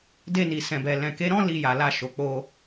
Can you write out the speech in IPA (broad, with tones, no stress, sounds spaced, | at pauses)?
d e˧ n i˨ s ɛ̃˨ b ɛ˨ l ɛ̃˨ k e˨˦ ɾ ɔ̃˦ l i˧ j a˨ l a˧ ʃ o˨ k͡p o˧